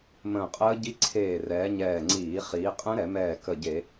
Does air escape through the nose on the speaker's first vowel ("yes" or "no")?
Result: yes